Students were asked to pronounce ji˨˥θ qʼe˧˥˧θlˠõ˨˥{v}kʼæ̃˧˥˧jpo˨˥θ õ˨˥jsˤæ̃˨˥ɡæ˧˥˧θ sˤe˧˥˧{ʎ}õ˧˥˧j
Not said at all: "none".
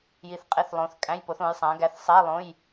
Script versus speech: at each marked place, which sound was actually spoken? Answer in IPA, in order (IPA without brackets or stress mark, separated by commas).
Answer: θ, lˠ